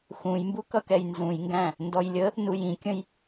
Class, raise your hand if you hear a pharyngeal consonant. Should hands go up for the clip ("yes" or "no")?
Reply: no